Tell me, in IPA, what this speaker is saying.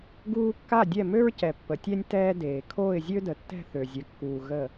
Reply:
ɡuː˥ kːa˥˨dʲɛ˥˨mø˥ɹcɛ˨ pːə˨tʲɛ˥nʲ tɛː˥deː˨ kʰoː˥˨ɪ̯zʲø˥də˨tːɛ̤˥˨ θø˨zʲə˨kːuː˨ ɣə˥˨

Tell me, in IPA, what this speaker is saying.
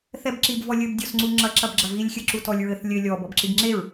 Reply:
θɛbǁib vɔlʲɘb dʲɔsŋ͡ǀuŋ͡ǁɐ ǁɐbɡ͡ǁɐvilʲ xʲɘǁutɔlʲɹɘθ lʲɘ lʲɔ bɔbǁibŋ͡ǁeɹ

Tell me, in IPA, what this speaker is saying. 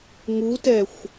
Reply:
ŋutɛxʷ

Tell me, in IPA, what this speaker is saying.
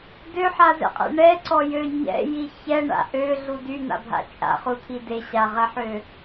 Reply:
døħazɛ̰qʼɛ̰ ɳɛǀɔjø ɲɛ̰ji çɛɳa̰ ʔøɮu dyn̪a̰bʱa̰ t͡ʃʼa̰χut̪ʰi deɕaʁɛħø

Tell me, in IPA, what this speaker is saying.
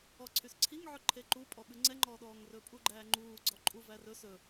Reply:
ɔǀʰysǀʰiŋʕɵ ǃʰeǃupʼɔ ɓʉŋ͡ǀɛŋ͡ǃɔːɗɔːŋ rɵpʼuɡ͡ǃæːŋ͡ǃuː ɡ͡ǀɔǃʼu værɵ sɵ

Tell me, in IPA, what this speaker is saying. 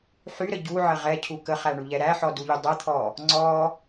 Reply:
ħyɾə ɟuʕə ʁɛcʰu kəχæɳuʎɛ ɾæħɔduʎy dˤɛt̪ʰɔ | ŋ͡ǀɔ

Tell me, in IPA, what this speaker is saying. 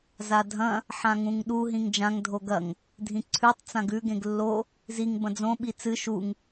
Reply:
zadʱɐ̃ | ħãŋũŋɗu ɦĩŋd͡ʒãŋ dʱoɡɐŋ | dʱĩǀʰʉtˤ t͡sãɡʉ ɡẽɡlːo | ziŋ bɐ̃d͡zõ ɓit͡sɨ ʃuŋ

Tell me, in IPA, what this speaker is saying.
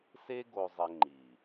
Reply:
se˦ ɡo˨zˤɘ˨ ŋ͡ǃi˨

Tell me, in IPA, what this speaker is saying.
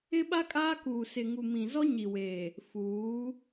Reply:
ɪ˦ɓa˦ kʼaː˦kuː˨sɪ˨ ŋu˨mĩ˨zɔ˦ɲi˨ weː˨ | fuː˨˦

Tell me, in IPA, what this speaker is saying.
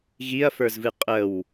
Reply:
ɣiɐ̯fə˞zvɨ qʼəw

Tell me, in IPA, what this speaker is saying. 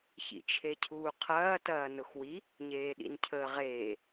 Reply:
çḭt͡ʃʰecʰuːqʰɐː tɐːnʊxwi | ɲeːɗḭncʰəːʁeː

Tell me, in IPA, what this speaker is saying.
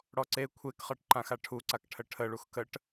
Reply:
ɽɔǀe kʷʰekχɤʈ ǃãxaʈʰuǀak ʈʰəʈʰəɭux kəʈ

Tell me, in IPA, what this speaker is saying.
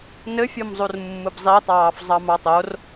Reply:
nɘfʲɔmzˤur mːɯbzˤitˤɑːf zˤɑmɑtˤor

